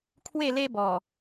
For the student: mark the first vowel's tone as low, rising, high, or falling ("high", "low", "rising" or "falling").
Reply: falling